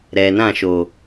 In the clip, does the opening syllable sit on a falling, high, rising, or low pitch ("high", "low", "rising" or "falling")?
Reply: low